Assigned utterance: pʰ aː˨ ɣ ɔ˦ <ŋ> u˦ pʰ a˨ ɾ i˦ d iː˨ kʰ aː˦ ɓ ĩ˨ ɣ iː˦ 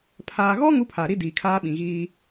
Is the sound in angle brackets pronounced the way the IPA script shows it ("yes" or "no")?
yes